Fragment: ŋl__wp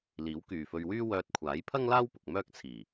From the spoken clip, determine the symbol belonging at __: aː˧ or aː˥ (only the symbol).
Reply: aː˥